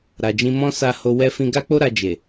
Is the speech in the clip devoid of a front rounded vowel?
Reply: yes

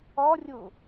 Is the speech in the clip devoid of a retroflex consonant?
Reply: yes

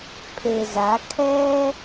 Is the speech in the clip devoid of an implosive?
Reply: yes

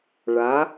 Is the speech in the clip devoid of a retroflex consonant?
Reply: no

